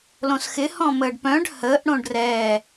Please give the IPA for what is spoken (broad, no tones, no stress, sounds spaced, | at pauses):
l õ s x ɪ h ɔ̃ m əː ɖ p œ̃ ɖ h əː ʔ ɽ õ ɖ r ɛː